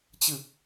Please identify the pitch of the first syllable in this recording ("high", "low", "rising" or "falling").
low